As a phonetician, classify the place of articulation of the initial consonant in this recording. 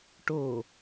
retroflex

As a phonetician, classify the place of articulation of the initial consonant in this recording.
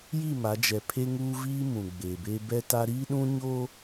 palatal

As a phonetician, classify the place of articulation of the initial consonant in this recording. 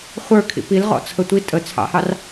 uvular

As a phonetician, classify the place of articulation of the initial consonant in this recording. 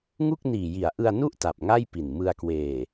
velar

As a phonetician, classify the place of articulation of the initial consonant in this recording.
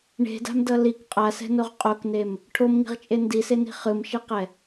retroflex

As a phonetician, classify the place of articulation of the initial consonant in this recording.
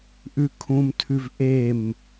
glottal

